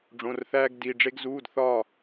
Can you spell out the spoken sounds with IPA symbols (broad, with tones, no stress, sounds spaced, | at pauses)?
ɖ͡ʐ õ˧˥˧ r θ æː˥ ɡ d i˧˥˧ ɖ͡ʐ e˥ ɡ z uː˧˥˧ d θ ɒː˥˨